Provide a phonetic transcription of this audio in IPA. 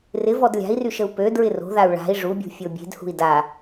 rɪvɔd lʲa̤i̯ryʃəu̯ pø dɹɪro̤ðau̯ ɭa̤i̯ ʐubʲṳ fʲobʲe̤d hṳi̯da

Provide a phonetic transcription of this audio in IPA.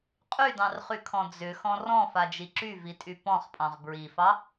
qʼydɑ̃rχykʰɔ̃ d͡zʏxɔ̃ rɔ̃fad͡ʒi ǁyvitʼy pɔ̃χpʼɑ̃ʁ bɹifɑ

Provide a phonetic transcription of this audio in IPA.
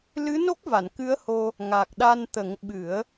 lɨ˧˥no˦˥k̚ va˨˩˨nkɨ˧˥ə̯ho˧ | ŋa˨˩k̚ɗa˧nt̪ə˨˩˦ŋ ɓɨ˨˩˦ə̯

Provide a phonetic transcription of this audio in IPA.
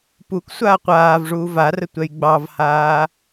puk sʷaːqʷaːvʐuː varə tʷɛjɡ͡bɑvhaː

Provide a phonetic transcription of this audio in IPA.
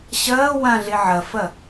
ɕɐː wãɮe ʕɐfɐ

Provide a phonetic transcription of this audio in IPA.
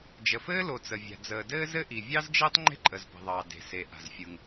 d͡ʒə˩fɘː˥lo˩ t͡sə˩vʲa̤˩ d͡zəː˩dɘː˥zɘ˥ ʔi˩ vʲɑ˥zd͡ʒɘː˥tˤ ŋ͡ǃe̤˥ǃʼə˩z pə̤˩ðˤɑː˩ de̤˩ se˩ ʔa̤˩zfʲɯ˩ŋ

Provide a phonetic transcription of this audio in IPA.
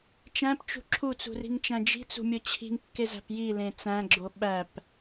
t͡ʃæ̃pt͡ʃṳ ǁʰut͡sṳri̤ŋt͡ʃæ̃ d͡ʒi̤t͡sṳmʲo t͡ɕʰi̤ŋkːezæ̤p jilẽ t͡sæ̃ɡ͡ǁo ɓæp

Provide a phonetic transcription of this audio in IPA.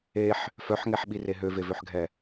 eħ | fœħŋɛħɓire ɦøvevøħɡʱɛ

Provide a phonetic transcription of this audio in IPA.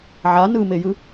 ʕa nɯmejɯ

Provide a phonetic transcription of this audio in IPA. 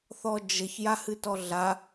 θɔd͡ʒəç jahɨtɔɮa

